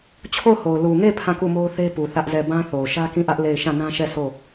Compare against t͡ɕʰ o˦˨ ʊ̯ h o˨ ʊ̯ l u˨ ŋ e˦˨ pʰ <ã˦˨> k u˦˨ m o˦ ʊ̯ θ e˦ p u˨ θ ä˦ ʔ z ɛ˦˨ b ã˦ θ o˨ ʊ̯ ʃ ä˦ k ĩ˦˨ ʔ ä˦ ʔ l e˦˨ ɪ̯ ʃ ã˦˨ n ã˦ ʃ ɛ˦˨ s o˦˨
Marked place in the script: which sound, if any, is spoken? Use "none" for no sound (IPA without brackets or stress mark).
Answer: ã˦˨